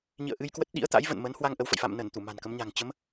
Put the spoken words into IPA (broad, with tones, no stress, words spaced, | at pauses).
ɲḭ˧˨ə̯ʔɨ˧jkwə˦˥t̚ ɗḭ˧˥ə̯t̪a̰˧˥jvə̰˧˨nmə˨˦n hwa˧ŋ ʔə˨˦wfə̰˧˨j fa̰˧˨mnə˧˩n t̪u˧˩ma̤˨˩nkə˨˦mɲa̤˨˩ŋ t͡ɕə˨˦m